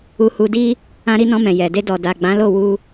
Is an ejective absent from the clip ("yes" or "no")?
yes